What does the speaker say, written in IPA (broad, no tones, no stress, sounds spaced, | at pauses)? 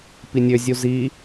p i nʲ ø zʲ u z i